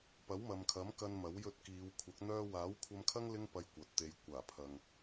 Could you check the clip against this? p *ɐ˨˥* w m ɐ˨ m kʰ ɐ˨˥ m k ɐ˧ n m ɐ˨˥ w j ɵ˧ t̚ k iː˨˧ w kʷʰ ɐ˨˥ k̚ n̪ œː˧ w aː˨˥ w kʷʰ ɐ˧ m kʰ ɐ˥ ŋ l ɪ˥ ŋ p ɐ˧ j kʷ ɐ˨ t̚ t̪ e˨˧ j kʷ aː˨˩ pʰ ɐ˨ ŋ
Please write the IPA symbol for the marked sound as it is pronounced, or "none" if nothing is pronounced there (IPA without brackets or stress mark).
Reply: ɐ˨˥